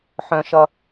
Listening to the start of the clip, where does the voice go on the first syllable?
high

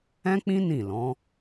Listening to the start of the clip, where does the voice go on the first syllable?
high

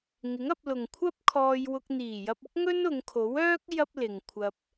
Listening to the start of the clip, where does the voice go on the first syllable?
rising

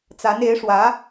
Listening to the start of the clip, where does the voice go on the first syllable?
rising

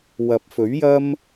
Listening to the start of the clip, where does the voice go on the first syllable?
rising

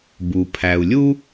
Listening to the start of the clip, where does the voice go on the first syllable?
low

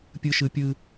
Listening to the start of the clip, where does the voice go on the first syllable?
high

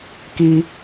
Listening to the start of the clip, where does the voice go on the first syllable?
high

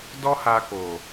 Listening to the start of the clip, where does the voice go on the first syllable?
high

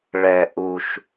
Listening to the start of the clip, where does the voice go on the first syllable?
low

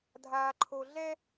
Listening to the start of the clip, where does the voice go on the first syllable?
high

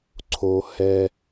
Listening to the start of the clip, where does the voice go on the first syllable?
high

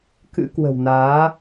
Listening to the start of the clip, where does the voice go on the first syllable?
rising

